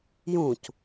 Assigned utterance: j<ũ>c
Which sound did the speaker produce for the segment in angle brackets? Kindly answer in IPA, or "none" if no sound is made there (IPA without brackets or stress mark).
ũ